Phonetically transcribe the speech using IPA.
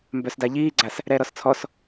m b œ s d a ʎ iː ɡ͡ǀ a s | ɾ ɛː ɾ ɔ s t͡sʰ ɔ s

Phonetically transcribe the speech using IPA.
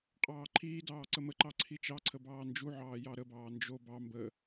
qʼ ɑː ǃʰ iː d ɑː ǀ ə m ə ǃ ɑ ǀʰ i t͡ʃ ɑ ǀʰ ə b ɑː n d͡ʒ u ʕ ɑː j ɑ ɾ ə b ɑː n d͡ʒ o b ɑ m b ə

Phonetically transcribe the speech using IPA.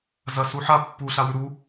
z ɐ s u ħ a pː u ɬ a w ʉ ɾ u

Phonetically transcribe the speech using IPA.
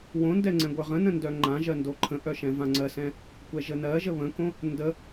w õ n d ɛ ŋ͡ǀ ɛ̃ ɡʷ ə˞ ʁ ə̃ n ə̃ n d œ ŋ͡ǃ ã ʒ ɜ n d o ǃʰ ə̃ ʔ œ ʃ ɛ̃ v ã ŋ͡ǀ ɜ s ɛ̃ | kʷ ɛ ʒ ə n ɜ ʒ ə β ə̃ k õ | n d ə

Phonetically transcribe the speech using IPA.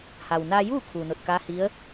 h a˩ w n aː˧ j uː˥˨ kʰ uː˩ n o˧˩ t̚ k aː˧˥ h i˧˥ ə̯

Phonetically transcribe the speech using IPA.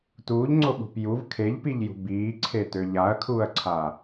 t uː ʎ ŋ͡ǀ o ɓ ṳ p j u v kʰ e ʎ p i ʎ j ṳ b iː ǀʰ e t ø ʎ a ɐ̯ kʰ uː ɐ̯ ǀʰ aː

